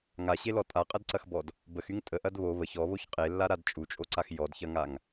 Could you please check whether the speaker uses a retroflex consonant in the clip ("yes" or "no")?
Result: no